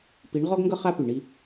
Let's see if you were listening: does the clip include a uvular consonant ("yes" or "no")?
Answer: yes